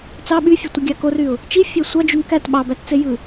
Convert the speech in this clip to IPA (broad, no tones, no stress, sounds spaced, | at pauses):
t͡s ɑ ɓ y fʲ o tʷ ɯ ɡʲ ɑ k o r y ʊ̯ | t͡ʃ i fʲ æ sʷ ɑ d͡ʒ u n k æ t ɓ ɑ b æ t t͡s e j ɯ